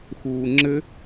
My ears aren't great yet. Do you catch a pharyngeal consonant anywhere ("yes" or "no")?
no